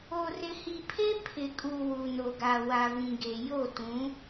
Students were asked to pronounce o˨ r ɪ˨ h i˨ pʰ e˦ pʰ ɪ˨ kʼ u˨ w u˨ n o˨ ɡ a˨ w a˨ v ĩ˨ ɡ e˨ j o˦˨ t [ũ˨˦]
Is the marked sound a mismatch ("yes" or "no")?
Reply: no